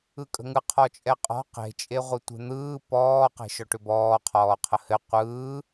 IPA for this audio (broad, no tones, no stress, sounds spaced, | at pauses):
ɯ kʼ ə̤ ŋ ɯ qʰ ɔ t͡ʃʼ ɛ qʼ ɔ̤ q e̤ t͡ʃʼ e ʁʷ ɯ tʷ e̤ n̪ ɯː p ɔː q e̤ ʃ ɔ ʈ ʏ b ɔː qʰ ɔː qʰ ə h ɘ qʷ ɯː